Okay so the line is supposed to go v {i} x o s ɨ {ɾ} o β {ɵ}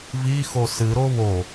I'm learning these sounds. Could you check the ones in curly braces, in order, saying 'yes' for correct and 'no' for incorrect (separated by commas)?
yes, yes, no